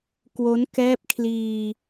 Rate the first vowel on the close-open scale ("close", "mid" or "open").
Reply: mid